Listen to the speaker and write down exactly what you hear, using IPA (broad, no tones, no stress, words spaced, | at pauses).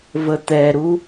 vət̪ɛɾu